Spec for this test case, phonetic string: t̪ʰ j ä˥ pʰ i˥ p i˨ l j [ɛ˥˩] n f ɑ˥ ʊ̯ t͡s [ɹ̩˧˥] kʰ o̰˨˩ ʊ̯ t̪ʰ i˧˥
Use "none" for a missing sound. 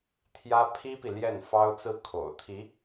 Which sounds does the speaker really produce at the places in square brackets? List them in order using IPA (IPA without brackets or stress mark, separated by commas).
ɛ˥˩, ɹ̩˥˩